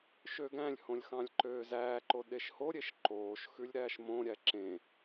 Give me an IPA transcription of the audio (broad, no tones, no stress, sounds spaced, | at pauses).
ʃ ø ɡ æ̃ lʲ h õ lʲ x ɑ̃ lʲ ǃ øː z æː ǃ o ɗ e ʃ h o ɾʲ e ʃ ǃ oː ʃ x ʉ lʲ ɾ æː ʃ m õ ɾʲ æ ǁ ẽ